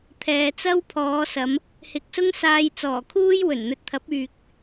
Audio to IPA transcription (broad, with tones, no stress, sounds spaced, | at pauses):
t̪ʰ ɛː˨ t͡s ɐ˥ w pʰ ɔː˨˧ s ɐ˨˧ m | h ɪ˨˥ k̚ s ʊ˥ ŋ s aː˧ j t͡s ɔː˨˩ kʰ uː˥ j w ɵ˨˩ n n̪ ɵ˧ t̚ t̪ʰ ɐ˨˥ p̚ yː˨ k̚